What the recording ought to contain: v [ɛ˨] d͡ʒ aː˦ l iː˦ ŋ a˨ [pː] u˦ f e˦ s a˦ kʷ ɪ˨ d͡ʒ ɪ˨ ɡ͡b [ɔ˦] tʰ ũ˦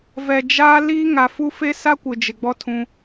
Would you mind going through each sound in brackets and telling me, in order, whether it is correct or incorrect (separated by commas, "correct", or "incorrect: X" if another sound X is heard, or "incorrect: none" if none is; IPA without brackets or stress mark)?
correct, incorrect: f, correct